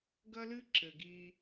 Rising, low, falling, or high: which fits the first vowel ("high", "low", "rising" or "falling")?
high